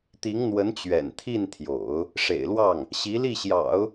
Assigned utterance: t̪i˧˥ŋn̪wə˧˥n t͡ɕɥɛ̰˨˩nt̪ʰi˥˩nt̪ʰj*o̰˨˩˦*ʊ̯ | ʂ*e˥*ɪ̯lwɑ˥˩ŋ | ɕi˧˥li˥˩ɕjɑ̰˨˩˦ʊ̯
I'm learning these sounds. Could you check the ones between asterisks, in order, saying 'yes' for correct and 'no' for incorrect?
yes, no

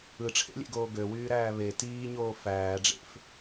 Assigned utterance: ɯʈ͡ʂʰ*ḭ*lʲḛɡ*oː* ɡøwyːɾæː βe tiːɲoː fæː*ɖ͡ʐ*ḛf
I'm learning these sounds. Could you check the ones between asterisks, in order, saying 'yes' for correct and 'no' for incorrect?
no, yes, yes

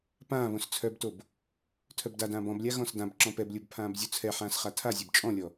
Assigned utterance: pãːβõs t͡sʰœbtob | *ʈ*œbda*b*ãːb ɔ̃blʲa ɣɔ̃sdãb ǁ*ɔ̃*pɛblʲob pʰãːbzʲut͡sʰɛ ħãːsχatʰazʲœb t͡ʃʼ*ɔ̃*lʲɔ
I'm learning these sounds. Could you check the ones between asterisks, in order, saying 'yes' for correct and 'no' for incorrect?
no, no, yes, yes

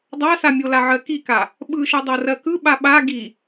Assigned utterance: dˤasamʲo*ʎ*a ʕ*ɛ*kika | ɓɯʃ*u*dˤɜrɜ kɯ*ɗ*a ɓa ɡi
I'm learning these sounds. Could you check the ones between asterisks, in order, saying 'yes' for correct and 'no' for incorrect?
no, no, no, no

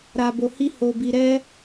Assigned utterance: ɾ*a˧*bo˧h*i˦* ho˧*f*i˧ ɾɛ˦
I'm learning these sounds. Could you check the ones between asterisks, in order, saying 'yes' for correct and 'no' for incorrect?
yes, yes, no

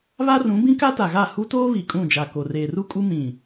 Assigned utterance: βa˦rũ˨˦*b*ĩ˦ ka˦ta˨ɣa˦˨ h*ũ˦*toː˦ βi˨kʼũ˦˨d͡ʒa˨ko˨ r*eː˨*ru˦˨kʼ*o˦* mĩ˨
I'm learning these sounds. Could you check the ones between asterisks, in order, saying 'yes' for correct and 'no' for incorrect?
yes, no, yes, no

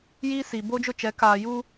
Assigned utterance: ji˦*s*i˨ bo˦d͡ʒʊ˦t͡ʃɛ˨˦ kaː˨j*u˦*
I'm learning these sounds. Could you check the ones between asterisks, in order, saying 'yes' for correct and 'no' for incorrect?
yes, yes

